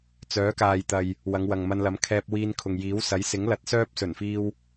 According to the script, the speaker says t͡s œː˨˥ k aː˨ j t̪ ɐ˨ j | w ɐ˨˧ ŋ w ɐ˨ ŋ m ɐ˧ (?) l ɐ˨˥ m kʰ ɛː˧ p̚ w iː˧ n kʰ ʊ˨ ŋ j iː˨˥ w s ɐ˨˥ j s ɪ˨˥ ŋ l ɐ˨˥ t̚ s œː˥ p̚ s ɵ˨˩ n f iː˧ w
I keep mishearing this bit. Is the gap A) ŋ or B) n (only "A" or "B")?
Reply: B